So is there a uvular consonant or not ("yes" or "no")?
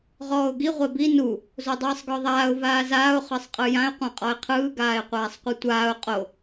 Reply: yes